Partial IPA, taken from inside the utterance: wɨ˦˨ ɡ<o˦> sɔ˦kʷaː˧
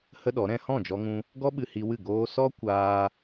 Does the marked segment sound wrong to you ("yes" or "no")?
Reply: yes